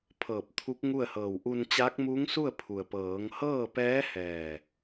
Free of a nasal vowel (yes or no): yes